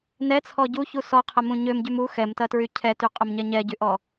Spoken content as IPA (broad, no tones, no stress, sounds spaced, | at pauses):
n ɛ t͡sʰ ɔ ɟ u ç u s ɔ qʰ ɐ m ũ ɲ ø m ɟ y m u x ɛ m t ɐ t ɹ y cʰ ɛ t y qʼ ʊ m ɲ ɛ ɲ ɛ ɟ y ʔ ɔ